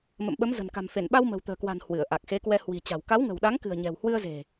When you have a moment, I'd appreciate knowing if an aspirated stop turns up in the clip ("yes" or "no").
no